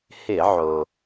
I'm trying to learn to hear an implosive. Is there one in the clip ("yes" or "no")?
no